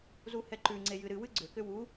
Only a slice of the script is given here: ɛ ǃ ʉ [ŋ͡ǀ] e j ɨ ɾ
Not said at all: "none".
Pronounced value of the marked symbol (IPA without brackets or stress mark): ŋ͡ǀ